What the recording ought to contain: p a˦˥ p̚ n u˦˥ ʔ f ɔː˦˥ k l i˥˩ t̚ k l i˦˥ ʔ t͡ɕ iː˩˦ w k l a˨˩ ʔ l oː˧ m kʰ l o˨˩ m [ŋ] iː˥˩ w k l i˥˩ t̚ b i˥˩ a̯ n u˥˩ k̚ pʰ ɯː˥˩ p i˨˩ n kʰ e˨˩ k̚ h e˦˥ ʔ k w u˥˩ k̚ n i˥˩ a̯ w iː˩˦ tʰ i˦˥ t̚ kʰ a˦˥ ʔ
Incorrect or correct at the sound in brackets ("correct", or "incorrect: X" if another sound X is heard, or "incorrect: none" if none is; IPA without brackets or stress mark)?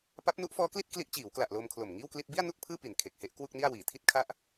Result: correct